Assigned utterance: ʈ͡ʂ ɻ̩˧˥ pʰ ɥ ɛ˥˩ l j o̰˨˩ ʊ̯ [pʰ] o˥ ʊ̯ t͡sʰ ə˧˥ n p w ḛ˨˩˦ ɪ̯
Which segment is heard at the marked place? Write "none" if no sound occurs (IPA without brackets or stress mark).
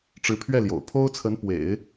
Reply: pʰ